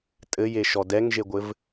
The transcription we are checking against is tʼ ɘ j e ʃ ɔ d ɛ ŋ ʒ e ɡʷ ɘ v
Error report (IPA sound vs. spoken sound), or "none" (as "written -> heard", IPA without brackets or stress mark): none